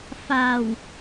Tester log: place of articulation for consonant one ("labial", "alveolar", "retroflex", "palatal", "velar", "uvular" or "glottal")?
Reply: labial